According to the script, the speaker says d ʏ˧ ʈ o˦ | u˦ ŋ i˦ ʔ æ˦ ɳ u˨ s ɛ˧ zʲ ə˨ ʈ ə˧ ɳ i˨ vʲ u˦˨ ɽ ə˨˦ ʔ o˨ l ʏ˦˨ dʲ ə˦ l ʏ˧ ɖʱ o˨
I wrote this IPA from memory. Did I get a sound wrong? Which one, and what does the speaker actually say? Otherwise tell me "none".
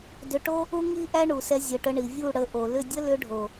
none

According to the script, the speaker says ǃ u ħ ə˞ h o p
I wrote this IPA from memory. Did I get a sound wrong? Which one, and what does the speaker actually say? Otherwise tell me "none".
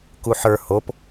ǃ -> k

